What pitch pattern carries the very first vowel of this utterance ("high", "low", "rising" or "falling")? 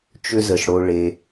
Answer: high